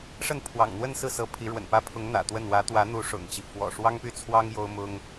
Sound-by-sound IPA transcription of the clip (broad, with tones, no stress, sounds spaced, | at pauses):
ʂ ə˥˩ n pʰ w ɑ̰˨˩ ŋ n̪ w ə˥˧ n s ɹ̩˥˩ s ɤ˧˥ pʰ i˧˥ ɻ w ə̰˨˩ n p ä˥ pʰ ʊ˧˥ ŋ n̪ ä̰˨˩ t̪ w ə˥˩ n w ä˧˥ t̪ w ä˧˥ n̪ u˧˥ ʂ ʊ̰˨˩ ŋ t͡ɕ i˦ f w ɔ̰˨˩ ʂ w ɑ˥ ŋ p y˥˩ t͡sʰ w ɑ˥ ŋ j o˥ ʊ̯ m ʊ˥ ŋ